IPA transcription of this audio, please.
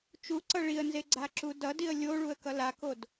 t͡ʃ u ǀ ʌ ɭ i ə̯ n z e ɡ͡ǀ a ǁ u d ʌ d i ə̯ lʲ o ɭ u ə̯ k ʌ l a k o d

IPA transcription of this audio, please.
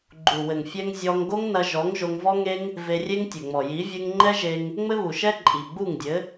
ɡ͡ǃ u˨ w ɘ˨ ŋ fʲ ɛ˧ ŋ zʲ ɔ˧ ŋ ɡ o˦ ŋ n ɐ˧ ʒ ɔ˨˦ ŋ ʒ o˧ ŋ v ɔ˦ ŋ e˦ ŋ | v e˧ rʲ e˦ ŋ tʲ ɘ˨ ŋ͡m ɔ˨ j i˨˦ vʲ ɨ˧ ŋ ŋ͡ǃ ɛ˦ ʒ e˧ ŋ | ŋ͡m ɘ˦ β u˨ ʃ ɛ˦ ǃʼ i˨ ɡ͡b u˦˨ ŋ dʲ ɘ˨˦

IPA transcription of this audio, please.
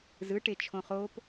z ɯ ʈ e t͡ʃʰ õ χ o p

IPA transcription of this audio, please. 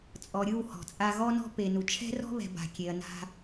t͡sʼ ɔ˨ ɾʲ ɯ˦˨ w h ɔ̤˨ t͡sʼ a˦ ɣ ɔ˦ n ɔ̤˦ p e˨ n u˨ t͡ʃʰ ɛ̤˦ r ɔ̤˦ β ɛ̤˨ b a̤˨ kʲ e˨ ɐ̯ n a̤˦

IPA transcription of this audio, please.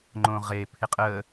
ŋ͡ǃ õ ʁ e pʰ ɪ qʼ ə

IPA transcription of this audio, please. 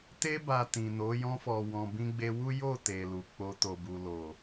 t e˧ b a˨ t ĩ˨ n o˨˦ j ɔ̃˧ f ɔ˨ w ɔ̃˨ b ĩ˧ ɡ͡b e˧ w u˦ j o˦˨ t e˨ l u˨ k͡p o˧ t o˨ b u˨ l o˨

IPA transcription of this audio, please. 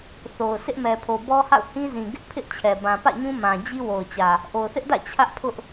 θ o˨ ʊ̯ sʰ ɪ˦ ʔ m ɛ˨ pʰ o˨ b ɔ˦ h a̰˦˨ ʊ̯ h ĩ˦ z ĩ˨ ɡ ɪ˦ ʔ pʰ ɪ˦ ʔ t͡ɕʰ ɛ˨ b ã˨ p ä̰˦˨ ɲ ũ˦ m ã˨ d͡ʑ i˦ w o˨ ʊ̯ t͡ɕ ä˨ | ʔ o˨ ʊ̯ θ ɪ˦ ʔ d ä̰˦˨ t͡ɕʰ ä˦ ʔ pʰ ʊ˦ ʔ

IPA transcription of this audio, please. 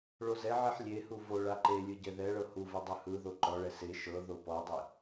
ɭ o z ɛ ʕ i ħ lʲ e h u v o ɭ a ǃ e lʲ ɯ ɟ ɛ ð ɛ ɭ ɤ h u v ɯ dˤ ɯ h ɯ ð o ǃ ɔ ɭ ɛ s e ʃ ɤ ð o p ɔ dˤ i

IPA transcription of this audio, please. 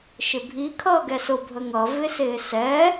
ʃ ɪ bʱ i kʰ ʌː ɡ ɛ s ʊ bʱ ə ŋ ʌ v ɪ s ɪː s ɛ

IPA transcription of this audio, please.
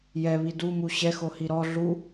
j ɛ β i d u m u ɕ ɛ x o h i ɾ ɔ ɮ u

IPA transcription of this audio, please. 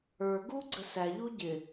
ə˞ ɡ u ɡ͡ǀ ə s æ ʎ u ɟ ɪ

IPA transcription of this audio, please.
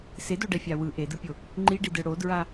s e d o ɖ ɛ fʲ a w ɯ ʔ e d ɯ pʲ o | ŋ͡ǃ i ɖ i d ɯ ɽ o d ɹ a

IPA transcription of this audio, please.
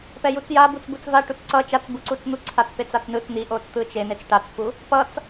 p ɛ j u t͡s j a b u t͡s b u t͡s v a ʈ u t͡s ǀ ʌ t͡ʃ a t͡s b u ǀ u t͡s n̪ u ǀʰ a t͡s p e t͡s a t͡s n ɯ t͡s n̪ i ʔ o t͡s t̪ ɯ t͡ʃ e n e t͡s ʈ a t͡s p u | p ʌ t͡s

